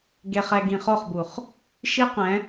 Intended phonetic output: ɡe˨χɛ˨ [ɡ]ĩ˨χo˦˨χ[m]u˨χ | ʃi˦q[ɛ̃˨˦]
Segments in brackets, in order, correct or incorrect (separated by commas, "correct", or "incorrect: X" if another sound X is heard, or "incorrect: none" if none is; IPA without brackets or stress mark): correct, incorrect: b, correct